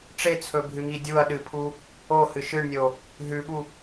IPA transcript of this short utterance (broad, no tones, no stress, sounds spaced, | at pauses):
ʈ͡ʂ e t͡sʰ ɵ bʱ ɨ ŋ i dʲ u ɐ̯ ɗ ɨ pʰ u | o h ɨ ʃ ɨ ɳ nʲ o | ɦ ʉ ɓ u